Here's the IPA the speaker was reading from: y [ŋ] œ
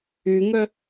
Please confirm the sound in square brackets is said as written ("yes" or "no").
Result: yes